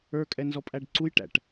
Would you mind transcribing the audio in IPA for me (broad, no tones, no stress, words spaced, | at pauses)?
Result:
ə˞kʼɛnzɔpʼæɖ ǀujʈæ̰ʈ